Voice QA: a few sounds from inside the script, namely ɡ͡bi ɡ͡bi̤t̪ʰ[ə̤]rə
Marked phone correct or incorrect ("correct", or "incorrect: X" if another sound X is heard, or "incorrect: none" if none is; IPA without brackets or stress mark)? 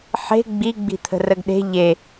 correct